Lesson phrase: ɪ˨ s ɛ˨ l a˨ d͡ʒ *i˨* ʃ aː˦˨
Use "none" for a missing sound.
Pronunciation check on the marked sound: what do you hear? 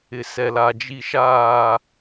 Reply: i˨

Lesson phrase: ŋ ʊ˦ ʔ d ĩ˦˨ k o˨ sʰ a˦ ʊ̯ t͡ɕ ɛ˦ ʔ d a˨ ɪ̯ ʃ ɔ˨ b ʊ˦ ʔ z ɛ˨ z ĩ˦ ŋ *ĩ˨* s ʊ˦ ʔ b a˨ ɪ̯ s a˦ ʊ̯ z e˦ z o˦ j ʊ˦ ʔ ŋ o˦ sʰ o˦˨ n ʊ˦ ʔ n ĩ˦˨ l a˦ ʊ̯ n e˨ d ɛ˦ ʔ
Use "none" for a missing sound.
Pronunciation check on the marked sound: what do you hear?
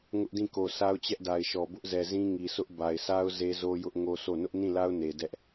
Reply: i˨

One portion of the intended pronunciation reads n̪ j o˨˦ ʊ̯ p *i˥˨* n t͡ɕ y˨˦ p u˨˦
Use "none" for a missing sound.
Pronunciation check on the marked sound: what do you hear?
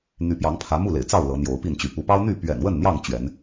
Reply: i˥˨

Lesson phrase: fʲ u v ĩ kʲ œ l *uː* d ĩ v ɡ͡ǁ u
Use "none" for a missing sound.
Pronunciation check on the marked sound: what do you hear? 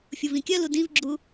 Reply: u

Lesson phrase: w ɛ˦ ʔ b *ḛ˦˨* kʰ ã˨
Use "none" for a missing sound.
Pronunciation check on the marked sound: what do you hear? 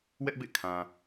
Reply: ḛ˦˨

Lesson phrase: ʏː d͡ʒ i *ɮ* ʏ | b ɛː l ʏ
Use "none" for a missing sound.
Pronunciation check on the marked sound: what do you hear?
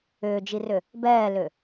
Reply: r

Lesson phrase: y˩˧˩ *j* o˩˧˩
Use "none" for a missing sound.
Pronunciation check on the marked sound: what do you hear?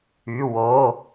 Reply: w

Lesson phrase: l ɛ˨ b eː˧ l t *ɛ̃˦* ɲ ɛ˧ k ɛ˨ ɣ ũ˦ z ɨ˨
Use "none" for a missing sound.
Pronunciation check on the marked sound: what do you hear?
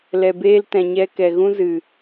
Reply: ɛ̃˨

